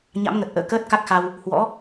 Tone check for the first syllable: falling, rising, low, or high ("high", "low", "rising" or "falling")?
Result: rising